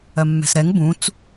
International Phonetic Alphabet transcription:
ɜmːɛ̤sɾɛŋ bũt͡s

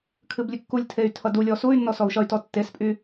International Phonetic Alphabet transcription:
kʰɨblʲɨkːulʲtʰey̯ tʰʌdulʲɔ suy̯nːɔ sɔu̯ʃʌy̯tɔ tːespʼy

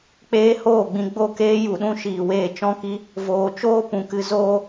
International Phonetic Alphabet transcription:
k͡peː˦hoː˦˨ɡ͡bĩ˧ ɡ͡bo˦˨keː˦ ju˨ɗũ˦ʃiː˨weː˦˨ t͡ʃɔ̃˦ki˦ | voː˨t͡ʃoː˦ pũ˨kɨ˧ zoː˦

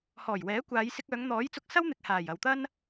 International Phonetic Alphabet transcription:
hɔː˨˩jwɛː˨˥ kʷaː˨˧jsɪ˧k̚œː˨˧ŋ n̪ɔː˨˥jt͡sʊ˧k̚sɐ˥wn̪ɪ˨k̚ haː˨˩j ɐ˨wt̪ɐ˥n

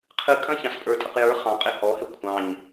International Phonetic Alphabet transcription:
qʰɨkʼɐ̃ çɑ̃spʼə˞tʼəq jə˞ χɑ̃qʼe hɔhɛ kʷʰɑ̃ɲ

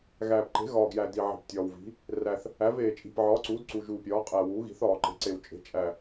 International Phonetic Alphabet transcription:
ɣæː˨˩pǃe̤˩˥ ɣɒː˨˩ɡjæ˨˩ di˨˩ʕi̤˨˩ptʲɒː˨˩wvi̤˩˥ | ræ˨˩θ | æ˩˥veː˨˩ t͡ʃʼi̤˨˩pʕɒː˩˥ǀuː˩˥d ǀu˨˩ʒuː˨˩pʲɒː˩˥ qʼæ˨˩ wuː˩˥ɣi̤˩˥θɒː˨˩ ǃe̤˩˥ ǀe˨˩wt͡ʃʼe̤˩˥ t͡ʃʼæ˨˩

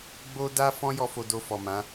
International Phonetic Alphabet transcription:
ɡ͡bo˦ da˦ fɔ̃˦jɔ˧ fo˧do˧fɔ˨mã˨˦

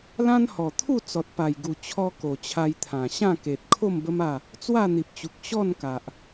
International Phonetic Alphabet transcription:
lã˦nhɔ˨˩t̪ʰu˥˧ t͡sɔ˨t̚pa˨˩jɡu˨˩ t͡ɕʰɔ˦ko˨˩t͡ɕʰa˧jt̪ʰã˨˩ ɕã˥˧ke˨t̚ kʰo˥˧mbə˦ma˥˧ | t͡swa˥˧n̪i˨p̚t͡ɕu˨k̚ ɕɔ˥˧nka˨ʔ

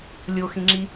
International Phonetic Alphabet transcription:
lʲoxĩŋ͡ǁi

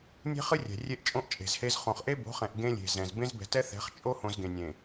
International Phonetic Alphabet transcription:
nʲe̤˦χɨ˦rʲɛ̤˨ rʲe˦ʔt͡ʃʼõ˦ʔt͡ʃʼe̤˨zhe˦z χõ˨χʔe˦bo̤˨˦χɛ̃˨ʔ ɡẽ˦lʲe̤˨zɛ̃˨z bẽ˦zbɛ̤˨tɛ˦θɛ̤˨˦χ t͡ʃʼo˦hõ˨z ɡẽ˨nʲẽ˨

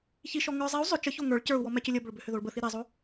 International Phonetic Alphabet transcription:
çiʃɔ ŋə˞ zˤiu̯ zˤʏ t͡ʃəço ŋə˞ɭ cə˞u̯ wɔmɛcʏlʲə bʏɭbʏhʏ ðoɭbəθi ɾɛzˤo

